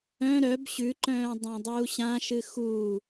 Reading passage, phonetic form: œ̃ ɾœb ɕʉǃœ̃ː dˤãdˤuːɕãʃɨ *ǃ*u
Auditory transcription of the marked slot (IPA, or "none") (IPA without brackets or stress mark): x